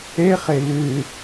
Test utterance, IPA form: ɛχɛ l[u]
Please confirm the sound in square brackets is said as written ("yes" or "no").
no